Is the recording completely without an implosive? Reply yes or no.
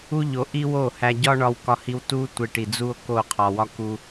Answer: yes